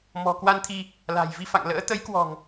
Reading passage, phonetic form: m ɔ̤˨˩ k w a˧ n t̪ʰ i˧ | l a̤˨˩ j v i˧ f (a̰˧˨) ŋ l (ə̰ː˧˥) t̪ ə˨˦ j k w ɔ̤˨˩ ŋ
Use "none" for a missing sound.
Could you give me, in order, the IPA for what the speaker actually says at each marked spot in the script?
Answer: a̰˧˨, ə̰ː˧˥

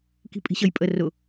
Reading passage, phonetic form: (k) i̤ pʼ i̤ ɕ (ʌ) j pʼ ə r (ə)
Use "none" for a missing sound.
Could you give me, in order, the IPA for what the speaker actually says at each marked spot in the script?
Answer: k, ʌ, ʊ

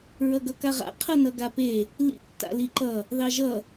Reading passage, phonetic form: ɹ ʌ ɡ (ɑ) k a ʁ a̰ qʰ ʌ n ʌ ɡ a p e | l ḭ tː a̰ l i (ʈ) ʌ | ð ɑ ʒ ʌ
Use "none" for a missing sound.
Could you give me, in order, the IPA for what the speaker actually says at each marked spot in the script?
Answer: ʌ, ǃ

